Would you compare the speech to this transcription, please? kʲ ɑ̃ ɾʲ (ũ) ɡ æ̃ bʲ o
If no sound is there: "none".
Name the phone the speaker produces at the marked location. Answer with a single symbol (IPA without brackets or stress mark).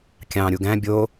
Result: u